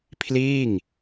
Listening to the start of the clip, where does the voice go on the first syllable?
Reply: falling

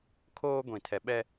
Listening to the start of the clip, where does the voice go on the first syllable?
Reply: high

